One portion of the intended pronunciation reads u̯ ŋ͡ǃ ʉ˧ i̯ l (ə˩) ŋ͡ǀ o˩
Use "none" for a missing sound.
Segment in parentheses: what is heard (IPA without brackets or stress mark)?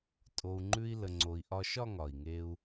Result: ə˩